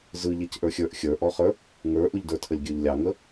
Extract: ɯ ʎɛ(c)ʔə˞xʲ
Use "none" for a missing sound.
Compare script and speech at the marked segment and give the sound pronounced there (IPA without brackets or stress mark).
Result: c